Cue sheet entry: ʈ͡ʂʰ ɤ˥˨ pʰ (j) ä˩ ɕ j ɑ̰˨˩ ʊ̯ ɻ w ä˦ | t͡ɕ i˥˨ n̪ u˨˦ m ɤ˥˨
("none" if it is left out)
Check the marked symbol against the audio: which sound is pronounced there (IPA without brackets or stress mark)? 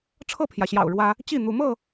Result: j